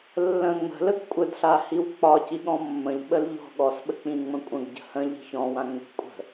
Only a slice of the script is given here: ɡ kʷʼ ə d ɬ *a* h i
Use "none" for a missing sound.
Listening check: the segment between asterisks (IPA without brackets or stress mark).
a